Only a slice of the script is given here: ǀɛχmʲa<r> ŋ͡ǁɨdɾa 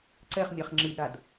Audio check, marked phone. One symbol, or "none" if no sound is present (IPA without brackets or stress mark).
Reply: χ